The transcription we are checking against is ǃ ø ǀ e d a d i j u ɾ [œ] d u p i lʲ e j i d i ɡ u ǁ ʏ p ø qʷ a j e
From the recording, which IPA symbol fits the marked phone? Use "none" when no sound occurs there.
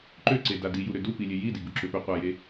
ø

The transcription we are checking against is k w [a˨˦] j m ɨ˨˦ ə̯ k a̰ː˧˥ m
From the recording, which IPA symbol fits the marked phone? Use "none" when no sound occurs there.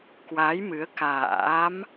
a˨˦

